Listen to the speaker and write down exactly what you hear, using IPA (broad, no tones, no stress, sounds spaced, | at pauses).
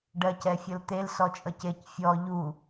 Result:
ɖ ɜ c ɛ fʲ ʌ l t̪ e l s ɔ t͡ʃʼ ʌ c e c fʲ ɔ ʎ u